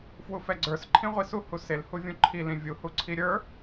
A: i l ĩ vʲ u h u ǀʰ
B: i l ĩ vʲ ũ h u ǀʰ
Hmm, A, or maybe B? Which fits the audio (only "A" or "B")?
A